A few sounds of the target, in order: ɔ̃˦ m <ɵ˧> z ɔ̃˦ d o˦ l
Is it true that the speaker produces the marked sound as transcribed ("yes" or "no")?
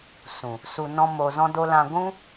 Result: no